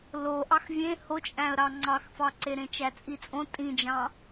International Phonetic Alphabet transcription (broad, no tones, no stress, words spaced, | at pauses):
loʔɑx vʲẽ hot͡ʃʼæ̃ə̯ɾɑ ŋ͡ǀɑxfɑǀe ɾẽt͡ʃæt͡sʼit͡sʼõ tʼĩd͡ʒɑ̃